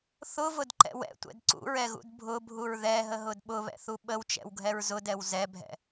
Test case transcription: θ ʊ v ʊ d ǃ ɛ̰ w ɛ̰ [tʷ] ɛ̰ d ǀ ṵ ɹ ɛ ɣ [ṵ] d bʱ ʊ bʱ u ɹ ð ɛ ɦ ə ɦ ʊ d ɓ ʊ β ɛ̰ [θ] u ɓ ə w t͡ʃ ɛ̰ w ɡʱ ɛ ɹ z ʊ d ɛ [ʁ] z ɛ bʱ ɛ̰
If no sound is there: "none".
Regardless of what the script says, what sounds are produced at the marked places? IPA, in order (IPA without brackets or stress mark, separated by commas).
tʷ, ṵ, θ, w